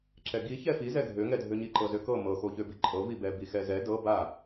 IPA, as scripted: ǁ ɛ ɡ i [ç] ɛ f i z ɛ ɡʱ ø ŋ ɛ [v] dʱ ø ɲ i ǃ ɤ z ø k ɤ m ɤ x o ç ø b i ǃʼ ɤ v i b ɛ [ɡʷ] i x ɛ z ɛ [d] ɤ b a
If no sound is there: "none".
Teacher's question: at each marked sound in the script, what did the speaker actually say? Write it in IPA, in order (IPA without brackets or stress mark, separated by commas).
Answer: ç, none, b, d